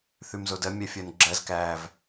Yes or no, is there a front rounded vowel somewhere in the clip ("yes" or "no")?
yes